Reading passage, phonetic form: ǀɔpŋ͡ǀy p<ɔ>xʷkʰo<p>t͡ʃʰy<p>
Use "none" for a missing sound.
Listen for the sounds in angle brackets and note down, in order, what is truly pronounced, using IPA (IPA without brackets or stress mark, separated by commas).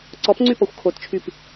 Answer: ɔ, t, p